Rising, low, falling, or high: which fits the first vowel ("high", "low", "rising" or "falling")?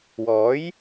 rising